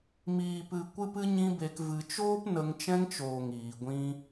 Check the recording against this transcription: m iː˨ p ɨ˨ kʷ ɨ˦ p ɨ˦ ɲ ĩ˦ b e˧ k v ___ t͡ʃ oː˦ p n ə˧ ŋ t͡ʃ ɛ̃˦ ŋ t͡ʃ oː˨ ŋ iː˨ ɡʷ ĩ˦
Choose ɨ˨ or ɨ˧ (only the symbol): ɨ˨